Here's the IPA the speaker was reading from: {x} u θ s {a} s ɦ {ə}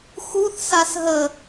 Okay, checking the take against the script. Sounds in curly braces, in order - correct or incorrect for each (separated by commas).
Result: correct, correct, correct